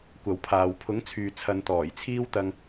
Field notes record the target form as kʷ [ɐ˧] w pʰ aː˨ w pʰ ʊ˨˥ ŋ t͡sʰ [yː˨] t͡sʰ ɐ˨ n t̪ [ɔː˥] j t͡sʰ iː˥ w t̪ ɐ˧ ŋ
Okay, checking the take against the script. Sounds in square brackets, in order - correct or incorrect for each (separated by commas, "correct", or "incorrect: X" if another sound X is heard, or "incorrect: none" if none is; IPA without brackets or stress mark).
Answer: incorrect: ɐ˨, correct, incorrect: ɔː˨˩